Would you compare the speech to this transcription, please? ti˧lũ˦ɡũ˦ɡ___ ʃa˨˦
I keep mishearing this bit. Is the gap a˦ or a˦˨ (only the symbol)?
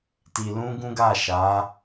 a˦˨